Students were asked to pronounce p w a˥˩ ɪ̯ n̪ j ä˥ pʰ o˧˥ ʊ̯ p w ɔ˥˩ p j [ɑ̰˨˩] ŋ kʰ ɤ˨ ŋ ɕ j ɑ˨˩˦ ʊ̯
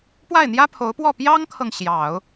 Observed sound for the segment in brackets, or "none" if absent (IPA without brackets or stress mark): ɑ˥